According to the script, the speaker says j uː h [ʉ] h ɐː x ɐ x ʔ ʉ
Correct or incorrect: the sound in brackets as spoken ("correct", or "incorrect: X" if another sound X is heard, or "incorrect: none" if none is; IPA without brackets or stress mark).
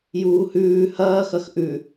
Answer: incorrect: ʉː